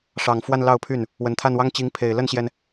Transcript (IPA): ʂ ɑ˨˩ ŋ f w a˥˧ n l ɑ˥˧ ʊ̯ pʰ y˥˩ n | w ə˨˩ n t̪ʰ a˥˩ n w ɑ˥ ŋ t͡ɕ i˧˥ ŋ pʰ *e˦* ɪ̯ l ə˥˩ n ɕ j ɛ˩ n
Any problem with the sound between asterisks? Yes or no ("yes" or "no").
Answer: yes